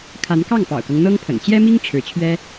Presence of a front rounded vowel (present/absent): absent